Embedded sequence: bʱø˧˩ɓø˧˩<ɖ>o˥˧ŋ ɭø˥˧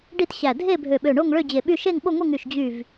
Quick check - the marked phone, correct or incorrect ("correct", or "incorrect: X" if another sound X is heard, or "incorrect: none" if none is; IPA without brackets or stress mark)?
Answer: incorrect: ɳ